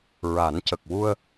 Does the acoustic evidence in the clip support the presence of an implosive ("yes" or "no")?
no